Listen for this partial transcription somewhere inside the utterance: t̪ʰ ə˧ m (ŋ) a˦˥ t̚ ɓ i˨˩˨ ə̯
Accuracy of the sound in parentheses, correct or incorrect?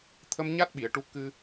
incorrect